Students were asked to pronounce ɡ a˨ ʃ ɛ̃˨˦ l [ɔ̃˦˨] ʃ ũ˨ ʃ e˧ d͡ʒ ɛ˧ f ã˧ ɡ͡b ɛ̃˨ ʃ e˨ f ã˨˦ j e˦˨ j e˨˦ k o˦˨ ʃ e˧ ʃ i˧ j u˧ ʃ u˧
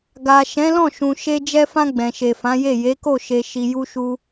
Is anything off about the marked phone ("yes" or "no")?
no